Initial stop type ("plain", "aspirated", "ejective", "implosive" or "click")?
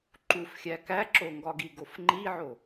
click